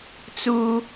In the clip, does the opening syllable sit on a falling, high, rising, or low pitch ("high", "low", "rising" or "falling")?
high